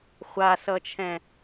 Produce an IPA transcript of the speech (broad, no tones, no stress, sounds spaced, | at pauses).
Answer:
χʷ a s ʌ t͡ʃʰ ɛ̃